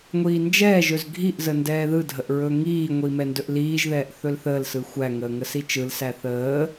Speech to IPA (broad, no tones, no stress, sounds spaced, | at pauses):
ŋʷ iː n d͡ʒ ɛː ʒ ɵ z ɡʱ i ʔ z ə n d ɛː ð ɯ dʱ ə ʔ ɹ ɵ ŋ iː ŋʷ i m ɛ n d ɵ ʔ l iː ʒ ð ɛː ʔ θ ɵ l θ əː l s ɯ xʷ æ ŋ əː ŋ ə s i t͡ʃ ɯ l s æ θ əː